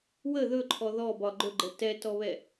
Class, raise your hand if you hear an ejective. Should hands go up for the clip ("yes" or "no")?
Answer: no